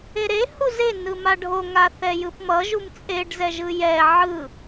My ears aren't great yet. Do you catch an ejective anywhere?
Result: yes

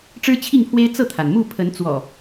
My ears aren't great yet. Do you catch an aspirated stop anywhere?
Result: yes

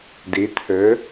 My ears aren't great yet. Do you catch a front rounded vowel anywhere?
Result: yes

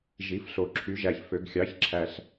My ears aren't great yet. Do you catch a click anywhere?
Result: yes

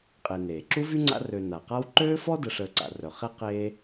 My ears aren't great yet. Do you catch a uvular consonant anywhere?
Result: yes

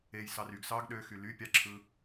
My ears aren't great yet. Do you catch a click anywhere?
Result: yes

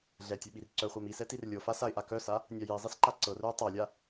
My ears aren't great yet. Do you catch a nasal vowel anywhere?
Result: no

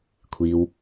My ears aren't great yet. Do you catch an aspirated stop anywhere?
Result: yes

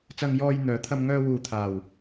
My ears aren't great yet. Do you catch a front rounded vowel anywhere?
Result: yes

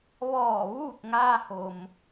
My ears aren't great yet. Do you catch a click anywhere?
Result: no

